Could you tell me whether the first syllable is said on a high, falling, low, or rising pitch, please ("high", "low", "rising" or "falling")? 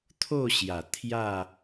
falling